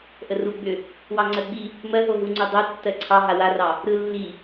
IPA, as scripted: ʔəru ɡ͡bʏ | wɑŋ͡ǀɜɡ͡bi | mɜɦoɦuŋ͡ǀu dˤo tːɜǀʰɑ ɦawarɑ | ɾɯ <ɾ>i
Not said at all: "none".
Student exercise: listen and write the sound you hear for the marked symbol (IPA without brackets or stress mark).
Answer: lː